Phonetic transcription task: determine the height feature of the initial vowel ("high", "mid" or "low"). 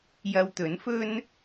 low